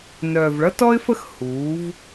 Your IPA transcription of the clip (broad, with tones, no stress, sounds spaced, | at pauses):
n œː˩ v ɭ ʌ˥ t ɔ˥ ɪ̯ f ə˥ x h uː˩˧ v